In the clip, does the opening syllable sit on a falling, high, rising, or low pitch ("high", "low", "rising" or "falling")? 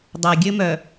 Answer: low